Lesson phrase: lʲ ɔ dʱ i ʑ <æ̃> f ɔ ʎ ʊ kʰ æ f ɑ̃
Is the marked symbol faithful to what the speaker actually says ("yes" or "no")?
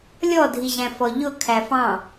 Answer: yes